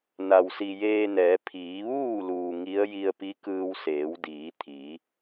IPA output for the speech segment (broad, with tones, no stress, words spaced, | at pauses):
na˩wsi˩jeː˧nɛː˩˧ pʰiː˩˧ ʋuː˥˨luː˩ ŋi˧˥ə̯ ji˧ə̯pi˧˥kɯː˧w seː˩˧wdiː˩˧t̪ʰiː˩˧